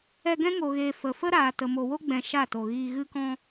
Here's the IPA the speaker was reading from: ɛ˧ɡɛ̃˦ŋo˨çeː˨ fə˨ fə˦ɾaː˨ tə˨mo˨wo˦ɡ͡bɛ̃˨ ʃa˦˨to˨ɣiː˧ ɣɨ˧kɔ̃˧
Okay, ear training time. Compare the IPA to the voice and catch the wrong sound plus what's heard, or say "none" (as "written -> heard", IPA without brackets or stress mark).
ç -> ɣ